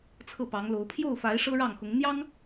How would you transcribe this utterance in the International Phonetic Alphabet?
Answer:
t͡sʰ ɤ˥˩ p ɑ˧˥ ŋ l o˧˥ ʊ̯ pʰ j o˥˩ ʊ̯ f a˧˥ ɪ̯ ʂ ɤ˥ ɻ ɑ˥˩ ŋ x ʊ˧˥ ŋ n̪ j ɑ˥ ŋ

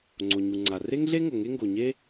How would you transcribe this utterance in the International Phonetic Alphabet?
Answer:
ŋ͡ǀ o˩ ɲ u˩ ŋ͡ǀ a˩ r e˥ ŋ ɮ e˥ ŋ o˩ ŋ e˥ ŋ ɡ o˩ ɲ e˥

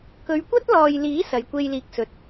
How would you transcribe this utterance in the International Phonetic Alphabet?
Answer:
k ɵ˨˧ ɥ kʷ ɐ˥ t̚ l ɔː˨ j l iː˨˥ s ɐ˨˥ j kʷ e˥ j l iː˧ k̚ s ɵ˨ t̚

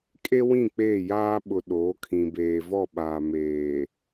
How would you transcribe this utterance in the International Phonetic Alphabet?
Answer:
kʼ e˦ w ĩ˦˨ k͡p eː˦˨ j aː˦ ɓ ʊ˨ ɗ oː˨˦ kʰ ĩ˨ b eː˨ v ɔ˦˨ ɓ aː˨ m eː˨

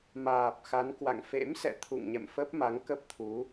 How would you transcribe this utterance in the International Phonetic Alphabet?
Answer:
m aː˨˩ p̚ x a˨˦ n k w a̰˧˨ ŋ f ḛ˧˥ m s ɛ̰˧˨ t̪ʰ ṵ˧˨ ŋ ɲ ɛ̰˧˨ m f ə˦˥ p̚ m a˨˦ ŋ k ə˦˥ p̚ t̪ʰ u˨˦

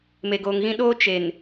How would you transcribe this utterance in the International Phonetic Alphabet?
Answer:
m e˨ ɡ oː˨ ŋ ɣ ĩ˦ ɗ oː˦ t͡ʃ e˨ n

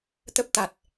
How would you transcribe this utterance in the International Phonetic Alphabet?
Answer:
t̪ ə˦˥ p̚ t̪ a˨˩ t̚

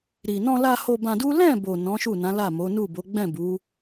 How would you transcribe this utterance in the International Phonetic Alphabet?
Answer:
ɾ i˨ n ɔ̃˧ l a˧ h o˧ b ã˧ d u˦ l ɛ̃˦˨ b o˨ n ɔ̃˨˦ ʃ u˦˨ n ã˨˦ l a˦˨ m o˨˦ n u˦˨ b o˨˦ ɡ͡b ɛ̃˦˨ b u˨˦

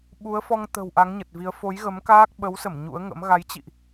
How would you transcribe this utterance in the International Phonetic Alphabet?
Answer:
ɓ u˨˦ ə̯ f ɔ˧ ŋ t̪ ə̤˨˩ w ʔ a˨˦ ŋ ɲ ə˨˩ t̚ v i˨˦ ə̯ f o˨˦ j ɣ ə˨˦ m k aː˦˥ k̚ ɓ ə˨˦ w s ə˧˩ m ɲ ṵ˧˥ ə̯ ŋ ə̰˧˥ m ɣ a˨˦ j t͡ɕ ḭ˧˨ ʔ

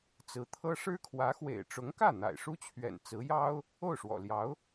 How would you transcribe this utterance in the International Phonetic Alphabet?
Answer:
t͡s ɹ̩˧˥ t̪ʰ ɤ˥ ʂ ɻ̩˥ kʰ w ä˧˥ x w ḛ˨˩ ɪ̯ ʈ͡ʂ ʊ˧˥ ŋ k ä˥˩ n̪ a̰˨˩ ɪ̯ ʂ u˥ t͡ɕʰ ɥ ɛ̰˨˩ n t͡s ɹ̩˧˥ j ɑ˥ ʊ̯ | o˥˩ ʊ̯ ʂ w ɔ̰˨˩ l j ɑ˧˥ ʊ̯

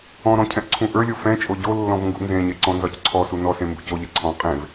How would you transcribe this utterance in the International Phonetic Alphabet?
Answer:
ɔ̃ ɾ ɔ̃ cʰ ɛ̃ ʔ ǀʰ ũ ʔ ə˞ lʲ o f ɛ̃ t͡ʃʼ o ɟ o lː ɔ̃ v ŋ ɡ ṵ n z ẽ ɲ e ǀ ɔ̃ n z ɒ c ǀʰ ɔ s u n ɔ s ẽ m b ṵ c o ʎ ɛ ǀʰ ɔ̃ qʼ ẽ v

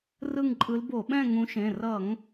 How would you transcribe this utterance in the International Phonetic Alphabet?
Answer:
r ɯ˦˨ ŋ ǃʼ ɯ˨˦ l b o˧˩˧ ɓ ɛ̃˦˨ ŋ ũ˨˦ ʃ ẽ˩˧˩ r ʌ˧˩˧ ŋ

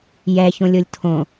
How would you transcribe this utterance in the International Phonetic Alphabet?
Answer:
j ɛ ç õ lʲ o lʲ tʰ õ

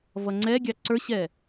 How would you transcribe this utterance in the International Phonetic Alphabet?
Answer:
v ʌ ŋ͡ǀ ɛ ɡʲ ɑ ǀ ə˞ ɕ ɛ

